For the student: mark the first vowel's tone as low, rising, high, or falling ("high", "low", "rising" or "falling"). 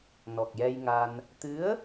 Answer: low